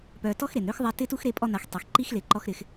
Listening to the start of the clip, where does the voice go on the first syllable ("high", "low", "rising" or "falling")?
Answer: low